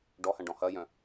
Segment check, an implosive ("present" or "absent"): absent